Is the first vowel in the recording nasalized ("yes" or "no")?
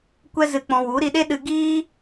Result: no